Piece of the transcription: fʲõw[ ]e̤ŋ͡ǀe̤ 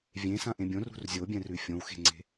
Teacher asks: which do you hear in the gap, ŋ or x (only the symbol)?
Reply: x